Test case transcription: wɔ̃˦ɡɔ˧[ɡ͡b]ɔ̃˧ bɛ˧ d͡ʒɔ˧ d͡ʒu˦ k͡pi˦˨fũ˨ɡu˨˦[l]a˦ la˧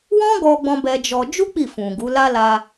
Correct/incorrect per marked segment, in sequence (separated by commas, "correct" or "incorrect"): correct, correct